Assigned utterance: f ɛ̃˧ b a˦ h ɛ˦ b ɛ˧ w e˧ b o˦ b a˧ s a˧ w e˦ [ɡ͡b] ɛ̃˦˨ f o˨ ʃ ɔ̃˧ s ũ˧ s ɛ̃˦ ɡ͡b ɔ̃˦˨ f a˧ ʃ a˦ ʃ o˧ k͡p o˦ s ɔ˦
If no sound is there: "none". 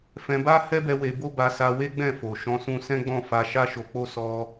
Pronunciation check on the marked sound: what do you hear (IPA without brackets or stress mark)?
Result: ɡ͡b